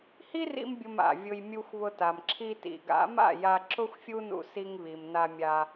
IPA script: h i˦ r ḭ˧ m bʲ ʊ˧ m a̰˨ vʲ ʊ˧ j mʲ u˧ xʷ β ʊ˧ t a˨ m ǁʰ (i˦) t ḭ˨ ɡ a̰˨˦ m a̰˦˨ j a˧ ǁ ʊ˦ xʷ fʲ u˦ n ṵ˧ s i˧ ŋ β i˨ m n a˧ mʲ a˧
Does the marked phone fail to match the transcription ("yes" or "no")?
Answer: yes